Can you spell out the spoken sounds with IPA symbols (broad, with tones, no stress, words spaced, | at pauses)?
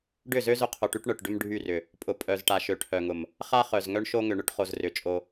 ɖʏ˦˨zø˦ zʊ˦qʰo˨ʈy˦ʈɳœ˨ʈ ɖʏ˦mɖʱy˦˨rʏ˨ | pʼʊ˨pʼœ˨zʈa˨ ʃø˨ʈʰœ˨ŋʊ˨m | χa˦χœ˨z ŋœ˦ɳʃo˦ŋʏ˨ɳʏ˦ʈ χo˨zrʏ˨ t͡ʃʼo˦